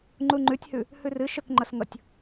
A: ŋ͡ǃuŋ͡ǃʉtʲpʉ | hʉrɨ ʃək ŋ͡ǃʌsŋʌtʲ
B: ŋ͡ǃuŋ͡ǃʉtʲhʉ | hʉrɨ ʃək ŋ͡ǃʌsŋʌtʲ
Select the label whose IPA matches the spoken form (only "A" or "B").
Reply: B